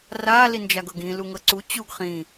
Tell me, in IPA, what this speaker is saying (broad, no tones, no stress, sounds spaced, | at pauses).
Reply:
r a l i n d͡ʒ a ɡ ɤ ɡ ĩ l u ŋ ɤ ǀ u t͡ɕ u ɡ χ ĩ